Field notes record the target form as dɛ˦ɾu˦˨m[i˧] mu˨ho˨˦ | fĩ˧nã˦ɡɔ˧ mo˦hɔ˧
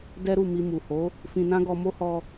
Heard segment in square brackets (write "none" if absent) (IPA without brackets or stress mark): i˧